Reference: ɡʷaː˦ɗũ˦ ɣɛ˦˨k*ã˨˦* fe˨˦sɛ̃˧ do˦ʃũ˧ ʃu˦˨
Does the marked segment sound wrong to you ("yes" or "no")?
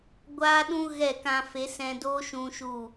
yes